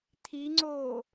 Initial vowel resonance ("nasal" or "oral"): oral